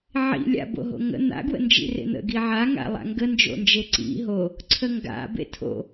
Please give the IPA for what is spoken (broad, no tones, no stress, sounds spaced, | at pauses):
ʕ ḭ lʲ a̰ b o̰ ɦ o̰ ŋ ə̰ n̪ a̰ ɡ w ə̰ n d͡ʒ ḭ r ḛ n̪ ə̰ ɡ i ʕ a ŋ a̰ lˠ a̰ ŋ ɡ ə n d͡ʒ o̰ n d͡ʒ e ǀ ḭ ɦ o | ǀʰ ə ŋ ɡ a̰ b ḛ tʰ o̰